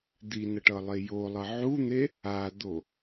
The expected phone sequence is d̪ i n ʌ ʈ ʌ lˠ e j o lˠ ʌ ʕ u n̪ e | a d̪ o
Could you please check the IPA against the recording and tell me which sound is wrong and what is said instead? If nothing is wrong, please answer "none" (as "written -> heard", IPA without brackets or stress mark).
none